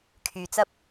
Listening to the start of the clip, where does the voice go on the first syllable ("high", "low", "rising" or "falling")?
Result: low